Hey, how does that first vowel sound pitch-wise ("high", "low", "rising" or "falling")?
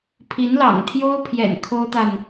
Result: rising